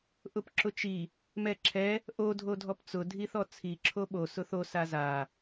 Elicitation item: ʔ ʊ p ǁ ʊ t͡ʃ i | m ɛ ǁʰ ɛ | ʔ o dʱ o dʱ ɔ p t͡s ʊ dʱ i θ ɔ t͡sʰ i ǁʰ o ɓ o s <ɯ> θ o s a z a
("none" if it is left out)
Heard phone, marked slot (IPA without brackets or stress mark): ʊ